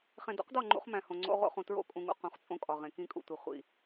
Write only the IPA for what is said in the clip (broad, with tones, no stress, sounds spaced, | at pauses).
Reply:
χ ẽ˨ d o̰˦ q d ɒ˦˨ ŋ͡ǃ ṵ˦ χ m æ̃˨ h õ˨ ŋ͡ǀ o̰˦ ʁ o̰˦ χ ũ˨ t ɹ o̰˦˨ kʼ ũ˨ ŋ ṵ˨ q ũ˨˦ χ t͡sʼ õ˦ kʼ ɒ˨ ʁ ẽ˨ k ĩ˦˨ kʼ ṵ˨ tʷ i˨ χʷ ḭ˦˨